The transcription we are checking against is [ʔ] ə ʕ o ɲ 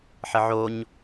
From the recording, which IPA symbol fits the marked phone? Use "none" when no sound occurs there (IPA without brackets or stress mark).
ħ